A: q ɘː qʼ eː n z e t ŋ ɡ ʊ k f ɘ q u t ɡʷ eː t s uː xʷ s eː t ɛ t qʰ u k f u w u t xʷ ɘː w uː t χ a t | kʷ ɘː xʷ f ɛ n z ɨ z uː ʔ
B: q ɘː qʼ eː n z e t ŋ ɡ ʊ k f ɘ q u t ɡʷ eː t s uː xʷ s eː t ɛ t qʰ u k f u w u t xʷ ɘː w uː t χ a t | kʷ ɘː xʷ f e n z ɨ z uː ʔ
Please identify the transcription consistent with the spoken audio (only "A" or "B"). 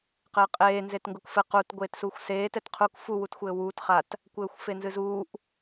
B